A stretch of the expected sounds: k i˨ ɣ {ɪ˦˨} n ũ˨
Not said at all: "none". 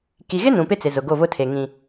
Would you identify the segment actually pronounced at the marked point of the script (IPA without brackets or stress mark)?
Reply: ɪ˦